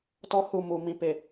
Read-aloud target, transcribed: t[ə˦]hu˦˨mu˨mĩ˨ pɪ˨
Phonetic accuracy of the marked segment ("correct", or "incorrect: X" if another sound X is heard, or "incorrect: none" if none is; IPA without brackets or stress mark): incorrect: ɔ˦